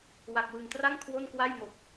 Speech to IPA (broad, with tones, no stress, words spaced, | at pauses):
wa˨˩k̚wɯ˨˩ŋtra˥˩ŋ kʰwo˥˩nkwa˥˩jmo˨˩k̚